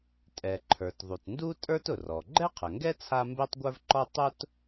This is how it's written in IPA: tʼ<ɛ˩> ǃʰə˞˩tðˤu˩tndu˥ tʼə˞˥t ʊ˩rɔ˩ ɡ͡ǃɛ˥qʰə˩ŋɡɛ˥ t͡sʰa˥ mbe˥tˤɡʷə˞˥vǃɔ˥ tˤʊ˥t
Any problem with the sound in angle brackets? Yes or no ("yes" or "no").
no